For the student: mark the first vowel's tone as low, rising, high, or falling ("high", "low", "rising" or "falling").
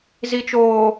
low